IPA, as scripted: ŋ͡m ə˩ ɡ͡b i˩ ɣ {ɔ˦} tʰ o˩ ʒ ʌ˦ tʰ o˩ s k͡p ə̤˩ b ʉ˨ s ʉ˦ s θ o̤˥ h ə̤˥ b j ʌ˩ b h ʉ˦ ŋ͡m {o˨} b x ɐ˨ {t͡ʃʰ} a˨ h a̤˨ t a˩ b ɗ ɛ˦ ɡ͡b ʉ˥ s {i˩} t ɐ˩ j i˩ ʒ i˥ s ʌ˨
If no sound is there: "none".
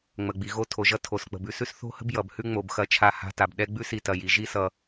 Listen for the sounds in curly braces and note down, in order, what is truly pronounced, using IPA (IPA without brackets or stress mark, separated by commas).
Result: o˦, o˩, t͡ʃʰ, i˨